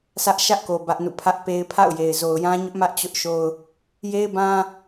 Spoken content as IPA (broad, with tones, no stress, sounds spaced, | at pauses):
s ä˦ ʔ ʃ ä˦ ʔ k o˨ b ä˦ ʔ n ṵ˦˨ pʰ ä˦ ʔ p e˦ ɪ̯ pʰ a̰˦˨ ʊ̯ j e˨ ɪ̯ z o˨ ʊ̯ j ã˦ ɲ ʊ˦ ʔ m ä˦ ʔ t͡ɕ ʊ˦ ʔ ʃ o˦ ʊ̯ | j e˦ ɪ̯ b ã˦